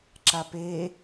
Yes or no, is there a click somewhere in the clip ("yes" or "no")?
yes